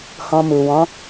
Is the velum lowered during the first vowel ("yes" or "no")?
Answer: yes